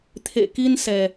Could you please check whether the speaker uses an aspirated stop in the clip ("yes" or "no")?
yes